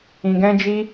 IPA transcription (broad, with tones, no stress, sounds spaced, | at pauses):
ĩ˨ ɡ ɛ̃˧ d͡ʒ i˧